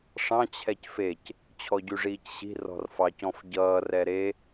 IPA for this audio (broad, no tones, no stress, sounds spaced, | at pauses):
ʂ ɑ̃ t͡ɕʰ ɛ c f e c | t͡ɕʰ ɔ ɟ y ʐ iː c ɕ i̤ r ɔ̤ r f ɑ c ɔ̃ f ɟ ʌː r ɛ ɾ e